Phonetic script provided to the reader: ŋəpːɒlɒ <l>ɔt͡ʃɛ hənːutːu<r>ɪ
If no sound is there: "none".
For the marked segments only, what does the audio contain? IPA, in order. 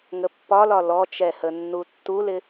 l, l

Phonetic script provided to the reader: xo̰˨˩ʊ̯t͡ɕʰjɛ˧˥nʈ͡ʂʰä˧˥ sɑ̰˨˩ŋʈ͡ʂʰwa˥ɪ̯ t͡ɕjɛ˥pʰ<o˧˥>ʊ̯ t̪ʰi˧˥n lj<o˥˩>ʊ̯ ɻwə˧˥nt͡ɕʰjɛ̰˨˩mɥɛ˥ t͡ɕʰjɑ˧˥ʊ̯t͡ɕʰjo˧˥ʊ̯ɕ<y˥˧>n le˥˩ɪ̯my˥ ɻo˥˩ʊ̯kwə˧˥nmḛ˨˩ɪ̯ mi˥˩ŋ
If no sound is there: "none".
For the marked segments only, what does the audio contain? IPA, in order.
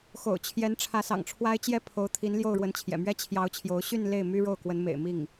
o˧˥, o˥˩, y˥˧

